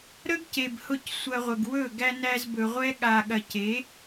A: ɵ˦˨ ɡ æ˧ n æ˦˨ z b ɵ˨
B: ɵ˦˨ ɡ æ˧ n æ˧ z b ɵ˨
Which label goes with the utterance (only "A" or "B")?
B